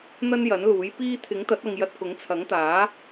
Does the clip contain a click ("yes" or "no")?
no